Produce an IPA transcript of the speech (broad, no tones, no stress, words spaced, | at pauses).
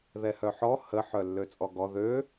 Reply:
ðɛhœħɔ hə ħœlːøt͡sʼɔɡɔ ðø